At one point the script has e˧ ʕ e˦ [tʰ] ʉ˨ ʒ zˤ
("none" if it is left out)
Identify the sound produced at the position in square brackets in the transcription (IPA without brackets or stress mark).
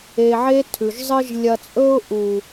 tʰ